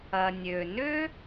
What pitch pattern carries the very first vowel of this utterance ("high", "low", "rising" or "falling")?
low